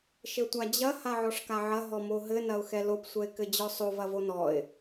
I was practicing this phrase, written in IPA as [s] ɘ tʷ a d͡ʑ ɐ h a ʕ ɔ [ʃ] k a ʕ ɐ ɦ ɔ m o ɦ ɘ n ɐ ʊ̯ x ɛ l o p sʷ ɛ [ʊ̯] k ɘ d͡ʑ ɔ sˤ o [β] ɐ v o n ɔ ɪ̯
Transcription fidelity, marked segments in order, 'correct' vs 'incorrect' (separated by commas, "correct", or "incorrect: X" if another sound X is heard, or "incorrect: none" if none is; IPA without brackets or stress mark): incorrect: ʃ, incorrect: ʂ, incorrect: ɪ̯, incorrect: v